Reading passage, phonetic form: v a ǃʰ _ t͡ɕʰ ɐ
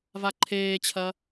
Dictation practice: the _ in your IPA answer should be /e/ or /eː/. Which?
eː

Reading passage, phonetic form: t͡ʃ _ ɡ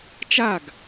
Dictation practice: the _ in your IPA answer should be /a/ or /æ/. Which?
a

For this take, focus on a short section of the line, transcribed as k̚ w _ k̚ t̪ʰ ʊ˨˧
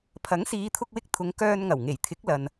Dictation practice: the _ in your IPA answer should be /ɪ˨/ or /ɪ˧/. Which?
ɪ˧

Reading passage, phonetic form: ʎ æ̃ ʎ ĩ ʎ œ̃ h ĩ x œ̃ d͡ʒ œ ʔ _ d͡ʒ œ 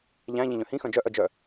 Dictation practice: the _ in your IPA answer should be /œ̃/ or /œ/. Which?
œ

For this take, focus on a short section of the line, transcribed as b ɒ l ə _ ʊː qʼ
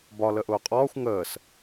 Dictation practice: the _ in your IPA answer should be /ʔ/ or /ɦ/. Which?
ʔ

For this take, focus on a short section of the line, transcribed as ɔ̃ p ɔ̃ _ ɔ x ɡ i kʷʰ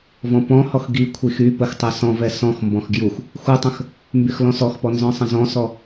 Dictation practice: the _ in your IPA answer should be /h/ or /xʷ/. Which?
h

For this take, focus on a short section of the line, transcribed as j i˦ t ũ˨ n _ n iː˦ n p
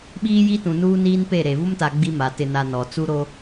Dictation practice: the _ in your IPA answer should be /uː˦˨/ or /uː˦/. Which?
uː˦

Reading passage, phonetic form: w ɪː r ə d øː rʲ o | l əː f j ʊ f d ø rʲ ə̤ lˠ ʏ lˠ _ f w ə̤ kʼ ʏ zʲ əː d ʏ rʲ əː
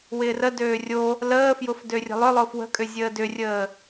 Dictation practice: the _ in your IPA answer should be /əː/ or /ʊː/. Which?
ʊː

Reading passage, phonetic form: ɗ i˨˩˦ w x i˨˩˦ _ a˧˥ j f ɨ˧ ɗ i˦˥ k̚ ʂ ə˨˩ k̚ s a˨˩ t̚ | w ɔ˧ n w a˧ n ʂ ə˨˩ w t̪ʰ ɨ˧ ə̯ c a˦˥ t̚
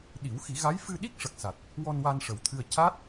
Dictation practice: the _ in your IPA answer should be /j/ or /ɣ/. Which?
ɣ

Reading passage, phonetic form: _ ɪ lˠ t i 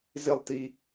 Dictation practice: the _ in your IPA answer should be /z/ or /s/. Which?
z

